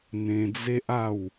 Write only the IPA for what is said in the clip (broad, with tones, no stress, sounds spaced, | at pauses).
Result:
n̪ ẽ˧ d͡z e˦ ʔ a˥˧ w